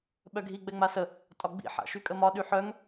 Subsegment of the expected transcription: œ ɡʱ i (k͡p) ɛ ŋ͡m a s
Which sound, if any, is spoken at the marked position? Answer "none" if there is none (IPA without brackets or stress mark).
ɡ͡b